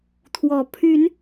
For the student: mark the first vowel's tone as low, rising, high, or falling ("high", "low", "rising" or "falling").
rising